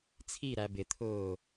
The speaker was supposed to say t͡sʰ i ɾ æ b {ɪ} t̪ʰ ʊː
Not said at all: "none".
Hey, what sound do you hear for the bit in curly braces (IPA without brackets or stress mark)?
ɪ